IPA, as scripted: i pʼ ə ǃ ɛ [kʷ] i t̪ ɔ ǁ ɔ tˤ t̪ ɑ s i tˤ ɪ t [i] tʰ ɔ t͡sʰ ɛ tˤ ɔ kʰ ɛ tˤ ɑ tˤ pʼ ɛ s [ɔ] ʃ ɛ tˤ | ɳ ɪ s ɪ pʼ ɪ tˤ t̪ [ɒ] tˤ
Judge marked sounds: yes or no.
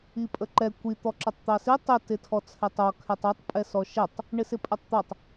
yes, no, yes, no

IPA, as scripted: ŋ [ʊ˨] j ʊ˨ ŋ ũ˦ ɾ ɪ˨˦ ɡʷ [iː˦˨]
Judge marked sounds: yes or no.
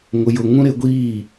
yes, yes

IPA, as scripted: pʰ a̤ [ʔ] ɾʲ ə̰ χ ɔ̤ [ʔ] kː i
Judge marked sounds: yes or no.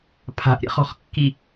yes, no

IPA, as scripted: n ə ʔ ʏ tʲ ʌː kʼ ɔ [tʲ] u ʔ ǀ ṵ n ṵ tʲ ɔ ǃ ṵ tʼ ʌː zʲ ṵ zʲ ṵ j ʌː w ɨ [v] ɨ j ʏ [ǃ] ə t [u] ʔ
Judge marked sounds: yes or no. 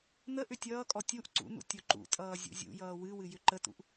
yes, no, yes, no

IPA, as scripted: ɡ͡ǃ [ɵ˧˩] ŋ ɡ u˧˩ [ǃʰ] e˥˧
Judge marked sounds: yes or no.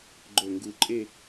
yes, no

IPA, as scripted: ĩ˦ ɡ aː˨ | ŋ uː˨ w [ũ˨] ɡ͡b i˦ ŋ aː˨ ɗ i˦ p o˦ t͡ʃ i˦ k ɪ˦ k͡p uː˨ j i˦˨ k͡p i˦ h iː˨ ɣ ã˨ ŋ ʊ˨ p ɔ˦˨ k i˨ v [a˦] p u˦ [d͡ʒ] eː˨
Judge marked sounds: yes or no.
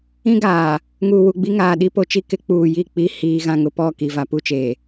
no, no, no

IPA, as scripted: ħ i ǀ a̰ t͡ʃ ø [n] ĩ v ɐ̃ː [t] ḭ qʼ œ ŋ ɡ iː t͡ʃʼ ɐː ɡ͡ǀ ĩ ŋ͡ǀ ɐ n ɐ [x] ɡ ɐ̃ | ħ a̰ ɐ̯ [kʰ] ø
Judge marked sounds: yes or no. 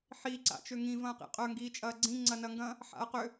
no, no, no, no

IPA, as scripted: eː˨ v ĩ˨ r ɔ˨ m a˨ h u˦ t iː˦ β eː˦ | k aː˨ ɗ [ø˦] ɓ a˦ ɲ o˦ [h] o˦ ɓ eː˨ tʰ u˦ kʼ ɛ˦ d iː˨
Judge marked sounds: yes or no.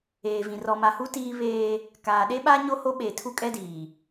no, yes

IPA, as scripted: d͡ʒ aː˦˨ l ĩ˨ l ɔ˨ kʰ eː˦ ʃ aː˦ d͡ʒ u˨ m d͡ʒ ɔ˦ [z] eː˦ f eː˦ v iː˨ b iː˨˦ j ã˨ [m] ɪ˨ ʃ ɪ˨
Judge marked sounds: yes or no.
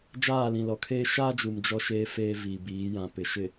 no, no

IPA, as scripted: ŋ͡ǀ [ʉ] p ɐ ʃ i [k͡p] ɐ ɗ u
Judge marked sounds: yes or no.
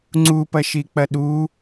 no, yes

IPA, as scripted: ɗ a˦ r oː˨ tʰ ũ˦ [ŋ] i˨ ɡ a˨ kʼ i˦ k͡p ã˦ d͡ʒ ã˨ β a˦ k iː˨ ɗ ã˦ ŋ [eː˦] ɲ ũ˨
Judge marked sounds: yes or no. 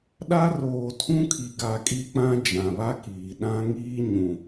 no, no

